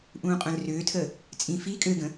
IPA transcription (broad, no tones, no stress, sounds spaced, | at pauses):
ʔ ũː qʼ œ̃ l r ʏː tʰ ə | t͡sʼ ĩ f i kʼ ø ɡ ə̃